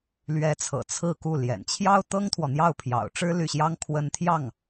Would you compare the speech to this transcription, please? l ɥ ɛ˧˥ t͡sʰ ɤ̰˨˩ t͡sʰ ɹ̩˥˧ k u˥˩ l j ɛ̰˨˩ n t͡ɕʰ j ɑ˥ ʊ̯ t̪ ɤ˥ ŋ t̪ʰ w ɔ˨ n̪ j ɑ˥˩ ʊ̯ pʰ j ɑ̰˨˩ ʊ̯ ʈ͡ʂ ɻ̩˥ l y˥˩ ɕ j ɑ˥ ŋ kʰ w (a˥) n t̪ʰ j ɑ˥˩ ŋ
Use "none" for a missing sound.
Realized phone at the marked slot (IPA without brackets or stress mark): ə˥